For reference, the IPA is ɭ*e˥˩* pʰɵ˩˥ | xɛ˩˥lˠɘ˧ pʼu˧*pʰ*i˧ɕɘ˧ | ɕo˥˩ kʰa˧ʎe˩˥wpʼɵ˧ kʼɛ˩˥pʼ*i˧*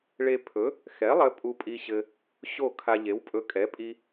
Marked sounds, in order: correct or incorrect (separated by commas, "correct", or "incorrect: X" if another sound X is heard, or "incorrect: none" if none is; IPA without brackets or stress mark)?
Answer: incorrect: e˧, incorrect: pʼ, correct